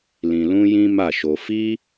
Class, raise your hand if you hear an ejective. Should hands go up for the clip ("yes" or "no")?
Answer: no